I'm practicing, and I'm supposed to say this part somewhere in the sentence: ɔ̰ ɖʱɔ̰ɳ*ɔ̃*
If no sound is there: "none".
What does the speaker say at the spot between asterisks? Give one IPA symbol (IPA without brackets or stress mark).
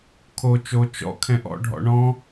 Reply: ɔ̃